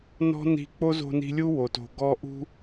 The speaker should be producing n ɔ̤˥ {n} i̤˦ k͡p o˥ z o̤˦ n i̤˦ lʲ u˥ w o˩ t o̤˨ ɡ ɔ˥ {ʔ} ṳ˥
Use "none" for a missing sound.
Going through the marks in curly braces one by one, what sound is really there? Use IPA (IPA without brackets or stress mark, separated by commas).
n, ʔ